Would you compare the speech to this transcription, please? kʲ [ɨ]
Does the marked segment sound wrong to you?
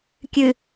no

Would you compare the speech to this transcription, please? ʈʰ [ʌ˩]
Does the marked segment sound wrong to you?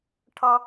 yes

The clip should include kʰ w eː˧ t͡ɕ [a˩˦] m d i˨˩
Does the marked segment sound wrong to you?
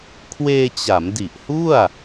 no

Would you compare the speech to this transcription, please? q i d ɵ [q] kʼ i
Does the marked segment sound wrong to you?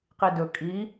yes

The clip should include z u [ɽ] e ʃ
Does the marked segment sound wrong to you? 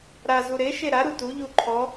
yes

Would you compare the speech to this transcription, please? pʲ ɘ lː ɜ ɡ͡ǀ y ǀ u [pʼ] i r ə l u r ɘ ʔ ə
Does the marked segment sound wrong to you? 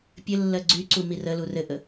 yes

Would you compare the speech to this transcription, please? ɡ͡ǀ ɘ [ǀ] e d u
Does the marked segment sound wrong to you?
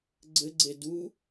yes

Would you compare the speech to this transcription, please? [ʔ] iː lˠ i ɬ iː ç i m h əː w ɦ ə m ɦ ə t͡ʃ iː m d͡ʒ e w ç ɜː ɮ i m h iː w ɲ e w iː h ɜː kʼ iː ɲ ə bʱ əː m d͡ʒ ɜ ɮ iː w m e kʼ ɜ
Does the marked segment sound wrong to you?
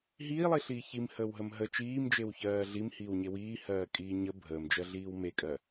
yes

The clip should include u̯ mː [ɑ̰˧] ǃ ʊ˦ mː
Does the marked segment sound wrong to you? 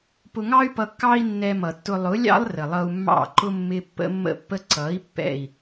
yes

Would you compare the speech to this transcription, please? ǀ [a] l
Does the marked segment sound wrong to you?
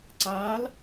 yes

